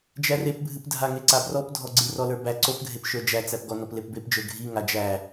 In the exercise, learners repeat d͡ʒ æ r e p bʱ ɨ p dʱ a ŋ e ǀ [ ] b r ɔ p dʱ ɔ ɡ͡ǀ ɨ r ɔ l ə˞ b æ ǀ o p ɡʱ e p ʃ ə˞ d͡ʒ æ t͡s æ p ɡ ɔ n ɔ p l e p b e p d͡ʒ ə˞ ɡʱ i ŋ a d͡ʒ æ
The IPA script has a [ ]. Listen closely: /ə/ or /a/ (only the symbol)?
a